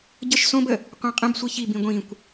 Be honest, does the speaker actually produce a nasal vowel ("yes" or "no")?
yes